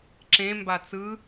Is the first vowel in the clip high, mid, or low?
mid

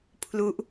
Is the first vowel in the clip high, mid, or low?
high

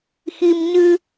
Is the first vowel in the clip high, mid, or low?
high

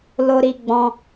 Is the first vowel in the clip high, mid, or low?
mid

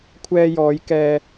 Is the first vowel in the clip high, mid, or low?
mid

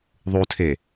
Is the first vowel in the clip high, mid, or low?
high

